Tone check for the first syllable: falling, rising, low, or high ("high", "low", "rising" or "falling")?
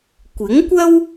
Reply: rising